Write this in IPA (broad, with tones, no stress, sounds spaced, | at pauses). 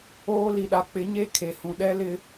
oː˦ l i˨ ɗ a˨ k͡p ɪ˨˦ ɲ e˦ kʰ e˨ h ũ˨ ɗ ɛ˦ l ɪ˦